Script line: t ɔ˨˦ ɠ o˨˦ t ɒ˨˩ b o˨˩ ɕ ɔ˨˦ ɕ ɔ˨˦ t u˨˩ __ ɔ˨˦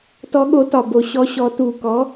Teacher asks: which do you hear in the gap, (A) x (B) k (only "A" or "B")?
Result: B